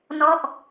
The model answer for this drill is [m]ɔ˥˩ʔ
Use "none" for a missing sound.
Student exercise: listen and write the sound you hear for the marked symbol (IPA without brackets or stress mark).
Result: n